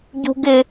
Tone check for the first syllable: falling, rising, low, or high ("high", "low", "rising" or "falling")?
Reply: high